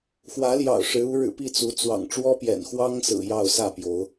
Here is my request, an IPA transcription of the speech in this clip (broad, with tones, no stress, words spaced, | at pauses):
xwä˨˦ljɑ̰˨˩ʊ̯ ʂɻ̩˨˦u˨˦ ɻɻ̩˨˩ pi˥˨t͡su˨˦ t͡swɑ̰˨˩ŋʈ͡ʂwɔ˦pjɛ̰˨˩n xwɑ˦ŋsɹ̩˨˩ jɑ˥˨ʊ̯sä˥˨pjo˨˦ʊ̯